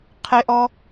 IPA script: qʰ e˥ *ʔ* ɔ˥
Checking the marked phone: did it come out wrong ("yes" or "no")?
no